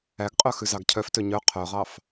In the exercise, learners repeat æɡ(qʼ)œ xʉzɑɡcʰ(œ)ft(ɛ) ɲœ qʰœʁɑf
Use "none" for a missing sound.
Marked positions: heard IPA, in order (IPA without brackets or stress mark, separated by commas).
qʼ, œ, ø